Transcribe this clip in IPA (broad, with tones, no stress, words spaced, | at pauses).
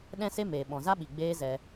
ɗɛ̃˦se˦meː˨ ɓɔ̃˨za˦ɓi˨ ɡ͡beː˦zɛ˧